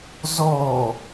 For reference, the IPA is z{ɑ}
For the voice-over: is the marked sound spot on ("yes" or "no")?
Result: no